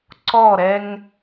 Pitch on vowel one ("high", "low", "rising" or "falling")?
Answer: falling